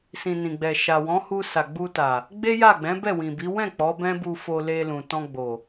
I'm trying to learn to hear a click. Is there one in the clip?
no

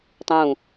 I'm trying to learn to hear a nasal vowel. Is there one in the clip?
yes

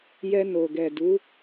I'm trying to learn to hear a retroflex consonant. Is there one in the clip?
no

